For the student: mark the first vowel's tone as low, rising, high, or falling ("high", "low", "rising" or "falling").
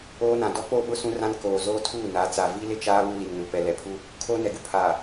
high